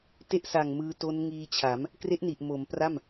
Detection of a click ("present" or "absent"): absent